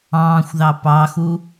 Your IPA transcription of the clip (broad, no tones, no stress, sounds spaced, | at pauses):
ɑ̃ː xʷ ð ɑ p ɑ x u